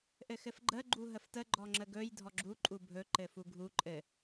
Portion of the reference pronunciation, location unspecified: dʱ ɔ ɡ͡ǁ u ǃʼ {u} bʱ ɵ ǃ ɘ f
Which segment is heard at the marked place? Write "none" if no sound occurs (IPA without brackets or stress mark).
u